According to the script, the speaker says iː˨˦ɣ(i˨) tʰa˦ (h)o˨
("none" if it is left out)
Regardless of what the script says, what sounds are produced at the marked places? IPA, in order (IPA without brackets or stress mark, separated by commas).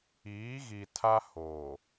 i˨, h